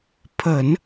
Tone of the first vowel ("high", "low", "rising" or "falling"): low